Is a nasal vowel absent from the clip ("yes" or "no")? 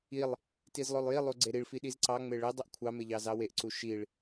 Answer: yes